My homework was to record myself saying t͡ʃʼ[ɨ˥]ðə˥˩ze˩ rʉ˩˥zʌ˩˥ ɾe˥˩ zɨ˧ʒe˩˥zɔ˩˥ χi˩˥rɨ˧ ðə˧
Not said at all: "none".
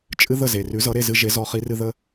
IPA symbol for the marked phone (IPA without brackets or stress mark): ɨ˥